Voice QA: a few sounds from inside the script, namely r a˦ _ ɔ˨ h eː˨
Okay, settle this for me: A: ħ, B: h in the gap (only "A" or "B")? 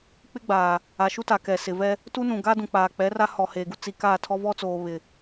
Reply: B